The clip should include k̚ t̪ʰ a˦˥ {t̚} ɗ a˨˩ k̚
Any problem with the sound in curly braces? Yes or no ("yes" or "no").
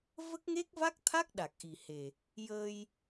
yes